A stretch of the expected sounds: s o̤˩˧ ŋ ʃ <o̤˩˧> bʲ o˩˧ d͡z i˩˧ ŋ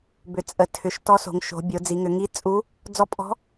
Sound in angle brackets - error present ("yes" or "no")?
no